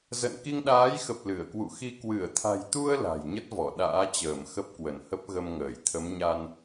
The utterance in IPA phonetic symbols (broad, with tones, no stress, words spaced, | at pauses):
zə̰˧˨n ki˧ŋɗaː˨˦jxə˨˩p̚ lɨ˧˩ə̯kwṵ˧˨xi˧ kwɨ˧˩ə̯t̪ʰa̤˨˩jt̪u˧ə̯ la̤˨˩jɲə˦˥t̚vɔ˧˩ ɗa̰ː˧˥t͡ɕəː˧˩m xə˦˥p̚kwə˧˩nhə˦˥p̚ɣə˧m ŋəː˧˩jt̪ʰə˨˦mɲa˧n